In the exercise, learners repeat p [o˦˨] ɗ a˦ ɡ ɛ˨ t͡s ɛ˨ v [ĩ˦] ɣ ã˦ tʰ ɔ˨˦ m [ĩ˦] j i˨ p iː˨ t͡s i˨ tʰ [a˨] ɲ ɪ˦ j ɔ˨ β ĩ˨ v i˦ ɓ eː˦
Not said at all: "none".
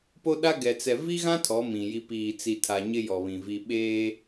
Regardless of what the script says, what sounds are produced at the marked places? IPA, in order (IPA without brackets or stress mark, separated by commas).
o˦, i˦, ĩ˨, a˨